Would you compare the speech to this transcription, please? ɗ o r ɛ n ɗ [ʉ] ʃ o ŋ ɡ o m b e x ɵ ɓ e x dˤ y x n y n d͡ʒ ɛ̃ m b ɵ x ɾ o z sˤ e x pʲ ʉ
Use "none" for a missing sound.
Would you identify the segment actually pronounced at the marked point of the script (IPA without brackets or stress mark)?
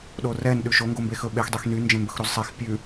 ʉ